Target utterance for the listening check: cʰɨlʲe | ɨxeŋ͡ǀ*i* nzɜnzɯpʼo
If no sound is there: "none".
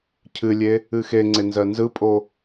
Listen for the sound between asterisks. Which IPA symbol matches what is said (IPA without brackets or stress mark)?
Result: e